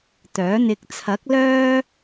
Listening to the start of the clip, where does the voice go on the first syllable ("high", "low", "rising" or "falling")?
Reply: rising